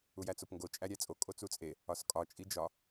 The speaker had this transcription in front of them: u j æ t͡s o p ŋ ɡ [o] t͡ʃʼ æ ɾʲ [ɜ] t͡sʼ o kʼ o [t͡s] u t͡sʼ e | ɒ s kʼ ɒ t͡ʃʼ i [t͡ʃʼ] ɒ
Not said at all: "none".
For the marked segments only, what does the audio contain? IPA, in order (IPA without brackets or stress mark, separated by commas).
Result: o, æ, t͡s, d͡ʒ